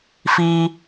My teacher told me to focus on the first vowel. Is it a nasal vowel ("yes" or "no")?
no